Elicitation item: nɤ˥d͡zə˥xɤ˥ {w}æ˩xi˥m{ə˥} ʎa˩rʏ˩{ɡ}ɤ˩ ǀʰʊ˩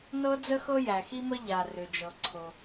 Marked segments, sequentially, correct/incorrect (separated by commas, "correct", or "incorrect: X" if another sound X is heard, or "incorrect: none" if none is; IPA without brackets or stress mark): incorrect: j, correct, incorrect: d͡ʒ